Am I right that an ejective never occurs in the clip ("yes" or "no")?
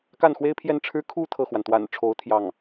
yes